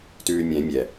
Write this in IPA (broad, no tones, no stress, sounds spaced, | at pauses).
t ʉː mʲ ɛ̃ mʲ ɛ